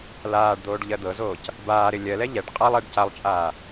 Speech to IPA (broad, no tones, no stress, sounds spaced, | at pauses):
l aː ɖ d̪ oː ɖ ʎ ɜ d̪ ɤ z oː c | b aː ɾ ɪ lʲ ɜ l ɛ ʎ ɛ ɖ qʼ a lˠ ɛ ɖ c a lˠ t͡ʃʼ aː